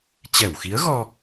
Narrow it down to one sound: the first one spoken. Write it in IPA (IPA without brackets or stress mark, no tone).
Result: t͡ɕ